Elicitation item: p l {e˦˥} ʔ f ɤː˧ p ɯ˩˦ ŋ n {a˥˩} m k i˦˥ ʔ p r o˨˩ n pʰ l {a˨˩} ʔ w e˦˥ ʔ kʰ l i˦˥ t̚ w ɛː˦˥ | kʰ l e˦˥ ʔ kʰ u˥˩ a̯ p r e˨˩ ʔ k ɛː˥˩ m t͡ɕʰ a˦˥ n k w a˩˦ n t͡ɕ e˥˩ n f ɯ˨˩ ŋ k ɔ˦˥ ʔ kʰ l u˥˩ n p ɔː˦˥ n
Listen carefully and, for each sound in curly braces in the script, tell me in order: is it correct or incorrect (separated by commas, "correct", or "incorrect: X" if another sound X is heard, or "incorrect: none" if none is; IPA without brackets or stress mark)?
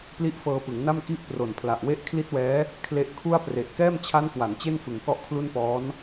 incorrect: i˦˥, correct, correct